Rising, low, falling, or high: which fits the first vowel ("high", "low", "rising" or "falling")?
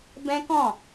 high